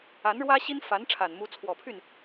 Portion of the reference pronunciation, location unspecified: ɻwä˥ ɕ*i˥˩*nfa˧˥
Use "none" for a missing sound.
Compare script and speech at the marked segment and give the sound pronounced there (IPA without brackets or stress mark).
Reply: i˥